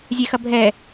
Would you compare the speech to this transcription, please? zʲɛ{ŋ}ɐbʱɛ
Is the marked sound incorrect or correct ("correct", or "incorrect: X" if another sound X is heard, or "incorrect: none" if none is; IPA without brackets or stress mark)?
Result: incorrect: x